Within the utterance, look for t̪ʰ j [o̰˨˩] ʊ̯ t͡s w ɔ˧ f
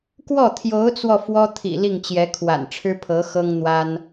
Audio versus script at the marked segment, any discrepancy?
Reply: yes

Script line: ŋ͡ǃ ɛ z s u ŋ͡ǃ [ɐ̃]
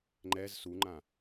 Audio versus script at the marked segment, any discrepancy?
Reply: yes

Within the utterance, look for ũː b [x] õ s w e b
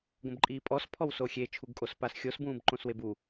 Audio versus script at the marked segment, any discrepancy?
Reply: yes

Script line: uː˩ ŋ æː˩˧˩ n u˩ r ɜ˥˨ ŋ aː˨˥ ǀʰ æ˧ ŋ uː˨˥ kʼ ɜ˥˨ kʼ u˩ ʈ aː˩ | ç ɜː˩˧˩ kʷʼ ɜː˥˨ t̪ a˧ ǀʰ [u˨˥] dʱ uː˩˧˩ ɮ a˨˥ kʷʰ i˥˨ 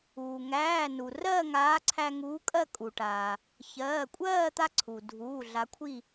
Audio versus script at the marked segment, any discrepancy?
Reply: yes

